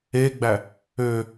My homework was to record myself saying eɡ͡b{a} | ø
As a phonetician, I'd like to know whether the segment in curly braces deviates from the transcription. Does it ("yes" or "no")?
yes